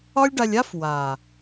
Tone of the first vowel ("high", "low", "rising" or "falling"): high